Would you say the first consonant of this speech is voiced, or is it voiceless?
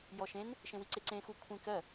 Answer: voiced